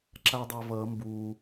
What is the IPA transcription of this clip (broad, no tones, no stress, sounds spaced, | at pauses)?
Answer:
ǁ a dˤ ɛ v ʌ m b u